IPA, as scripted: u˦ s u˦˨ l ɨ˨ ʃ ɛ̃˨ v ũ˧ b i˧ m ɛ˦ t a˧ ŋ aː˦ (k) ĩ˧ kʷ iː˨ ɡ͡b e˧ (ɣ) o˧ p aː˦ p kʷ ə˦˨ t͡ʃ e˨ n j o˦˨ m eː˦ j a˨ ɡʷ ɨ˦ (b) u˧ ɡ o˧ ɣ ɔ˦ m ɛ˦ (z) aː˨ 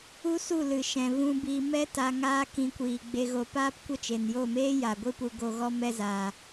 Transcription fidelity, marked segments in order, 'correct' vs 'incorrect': correct, correct, incorrect: p, correct

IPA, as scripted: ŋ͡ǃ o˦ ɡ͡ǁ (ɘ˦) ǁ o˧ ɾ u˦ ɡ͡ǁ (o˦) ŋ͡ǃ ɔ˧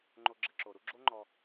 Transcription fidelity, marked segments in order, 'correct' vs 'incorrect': correct, correct

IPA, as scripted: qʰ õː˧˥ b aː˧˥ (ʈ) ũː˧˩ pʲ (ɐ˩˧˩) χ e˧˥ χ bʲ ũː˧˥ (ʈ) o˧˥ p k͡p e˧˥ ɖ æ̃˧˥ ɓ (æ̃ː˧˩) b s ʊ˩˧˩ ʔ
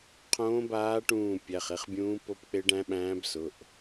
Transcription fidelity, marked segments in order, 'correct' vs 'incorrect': correct, incorrect: æ˩˧˩, incorrect: p, incorrect: æ̃ː˧˥

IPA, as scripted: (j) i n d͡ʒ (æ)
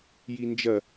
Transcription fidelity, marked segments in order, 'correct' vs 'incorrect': correct, incorrect: ɐ

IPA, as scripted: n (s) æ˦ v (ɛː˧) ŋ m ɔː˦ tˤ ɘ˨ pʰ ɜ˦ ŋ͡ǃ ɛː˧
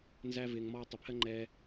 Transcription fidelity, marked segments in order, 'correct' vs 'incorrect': incorrect: z, incorrect: ɪː˧

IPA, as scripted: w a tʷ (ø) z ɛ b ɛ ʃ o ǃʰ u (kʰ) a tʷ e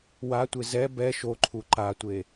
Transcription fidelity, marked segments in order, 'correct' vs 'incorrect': incorrect: e, incorrect: ǃ

